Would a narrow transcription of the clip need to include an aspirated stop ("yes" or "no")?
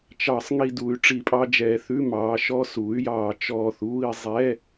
no